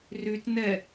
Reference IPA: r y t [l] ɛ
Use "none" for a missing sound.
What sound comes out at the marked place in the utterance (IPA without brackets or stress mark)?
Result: n